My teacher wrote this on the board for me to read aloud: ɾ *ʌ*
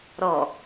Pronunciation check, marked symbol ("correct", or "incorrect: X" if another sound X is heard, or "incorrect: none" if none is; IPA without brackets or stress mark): incorrect: ɔ